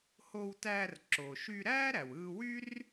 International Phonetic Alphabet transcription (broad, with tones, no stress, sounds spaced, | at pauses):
h o˧ w t æː˧ r ǁ o˩ ʃ y˧ ɾ æː˥ ɾ æ˩ w ɯː˧ w y˥ r